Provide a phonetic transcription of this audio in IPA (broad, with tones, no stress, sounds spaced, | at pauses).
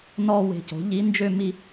n ɔ˥˧ w e̤˧˩ c o̤˩˥ ʎ i˧˥ n d͡ʒ ø˥˧ m i˥˧